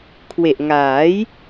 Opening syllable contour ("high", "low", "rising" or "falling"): low